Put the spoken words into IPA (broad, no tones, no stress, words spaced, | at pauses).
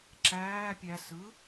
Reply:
ǁæː pʲæ sɯ